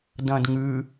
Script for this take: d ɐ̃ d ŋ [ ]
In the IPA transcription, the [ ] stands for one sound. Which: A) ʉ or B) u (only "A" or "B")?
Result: A